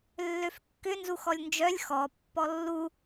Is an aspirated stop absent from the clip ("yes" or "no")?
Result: yes